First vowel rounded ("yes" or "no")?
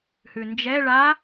yes